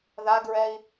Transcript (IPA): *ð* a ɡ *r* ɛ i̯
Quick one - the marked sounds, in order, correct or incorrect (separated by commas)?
correct, incorrect